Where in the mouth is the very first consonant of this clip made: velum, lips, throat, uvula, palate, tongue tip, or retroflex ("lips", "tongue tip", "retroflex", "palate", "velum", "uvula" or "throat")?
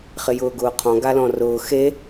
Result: uvula